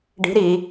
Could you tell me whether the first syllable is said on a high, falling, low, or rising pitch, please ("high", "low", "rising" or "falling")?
rising